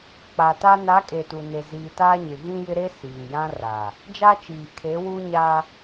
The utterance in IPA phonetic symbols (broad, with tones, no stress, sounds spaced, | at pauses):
k͡p a˨ t a˦ n a˨˦ kʼ e˨ t u˨ n e˨ z iː˨ t aː˦ ɲ ɪ˨ ɣ ĩ˦ j ɪ˦ ɾ e˦ s iː˨ j ã˦ r a˨ | d͡ʒ a˦ t͡ʃ iː˨ kʰ e˨˦ w u˦ ɲ a˦